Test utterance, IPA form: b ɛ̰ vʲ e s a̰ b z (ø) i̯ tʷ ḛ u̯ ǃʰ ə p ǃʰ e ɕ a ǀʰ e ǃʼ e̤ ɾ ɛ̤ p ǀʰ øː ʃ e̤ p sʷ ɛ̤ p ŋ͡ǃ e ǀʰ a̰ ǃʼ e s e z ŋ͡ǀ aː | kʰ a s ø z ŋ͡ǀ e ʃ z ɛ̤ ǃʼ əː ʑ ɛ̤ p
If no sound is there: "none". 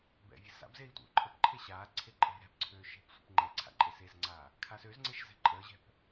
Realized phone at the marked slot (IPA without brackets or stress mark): e